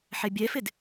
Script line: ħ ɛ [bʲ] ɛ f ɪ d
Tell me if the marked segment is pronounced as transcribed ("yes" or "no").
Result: yes